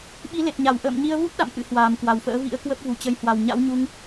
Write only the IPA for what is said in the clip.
ɓi˨˦le˨˩t̚ɲa˧˩w ʔə̰ː˧˨mɲi˧ə̯vu˦˥t̚ɗa̰˧˨m ʔɨ̰˧˥hwaː˨˩mkwa˨˩wfə̰ː˧˥ vḭ˧˥ə̯kwə˦˥p̚ vu˧˩t͡ɕə˨˦jhwa˨˩w ɲa̰˧˥wɲu˧ŋ

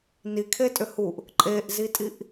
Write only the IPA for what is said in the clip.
nikʰetʼʏ huʔ | ǃʼeʔzitʼiʔ

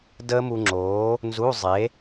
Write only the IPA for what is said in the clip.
dəː˦˥mu˧ŋ͡ǁoː˨˥ | nzu˧˥˧zˤe˨˥

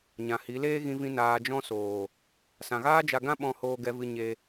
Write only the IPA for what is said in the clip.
ɲã˨hi˨˦leː˦ ɣĩ˧vĩ˧ naː˨d͡ʒɔ̃˧soː˨ | sã˨ɣaː˦d͡ʒa˧ɡã˦ ɓɔ̃˧hoː˧ɡɛ˧vɨ˧ ɲe˧

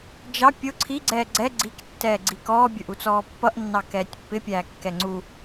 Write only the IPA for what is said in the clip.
d͡ʒɑ pʲʊ ǀʰi ɡ͡ǀɛːɡ͡ǀɛ ɡ͡ǀik tːɛːɡ͡ǀikɔː bʲə˞ʔut͡sɔːpːʌʔ nːɑkɛːtʲpːɪ pʲæːkːɛŋ͡ǀu

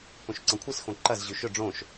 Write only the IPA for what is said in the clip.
põʃǀɐ̃kʷʰɨsxõ ǃɐz ʑʉʃɵ ɖ͡ʐõʃ

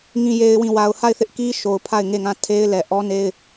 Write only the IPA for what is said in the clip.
ŋĩ˨je˨ɪ̯wĩ˨ wa˨ʊ̯ha˦˨ɪ̯θɪ˦ʔ ki˦ʃo˨ʊ̯ pʰa˦˨ɪ̯ŋe˦˨ŋã˦˨ tʰe˦ɪ̯lɛ˨ ʔɔ˦ne˦ɪ̯

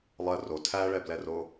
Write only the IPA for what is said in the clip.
lˠɜ ro tʰæɭɛblɛro

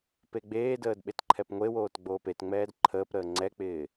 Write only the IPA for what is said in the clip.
peɡ͡beːdəːd ɓetǃʰɛpŋʷewoːt ɡ͡boːpetŋ͡mɛːd ǃʰəːpɾəː ŋ͡ǀɛk͡pɪː

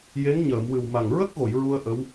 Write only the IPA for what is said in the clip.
je˧˥ŋɲəː˨˩˨mwɨ˨˩w ma˨˩ŋ ɹə˦˥k̚ɣo˨˩˨j ɹu˧ə̯ ʔə˧˥w

